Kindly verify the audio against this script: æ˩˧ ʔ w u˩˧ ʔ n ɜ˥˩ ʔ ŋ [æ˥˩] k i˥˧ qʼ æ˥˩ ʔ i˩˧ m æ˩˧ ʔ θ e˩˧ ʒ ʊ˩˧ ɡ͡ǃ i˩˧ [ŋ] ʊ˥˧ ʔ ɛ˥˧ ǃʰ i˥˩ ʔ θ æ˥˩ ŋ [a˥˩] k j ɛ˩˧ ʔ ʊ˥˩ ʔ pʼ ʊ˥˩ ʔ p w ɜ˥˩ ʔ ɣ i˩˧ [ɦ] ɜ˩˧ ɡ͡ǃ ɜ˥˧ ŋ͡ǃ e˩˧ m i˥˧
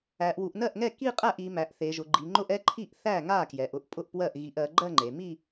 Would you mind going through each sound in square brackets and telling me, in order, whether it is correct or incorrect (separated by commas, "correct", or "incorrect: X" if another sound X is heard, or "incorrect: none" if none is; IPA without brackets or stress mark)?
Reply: incorrect: ɛ˥˩, incorrect: ŋ͡ǃ, correct, incorrect: ʔ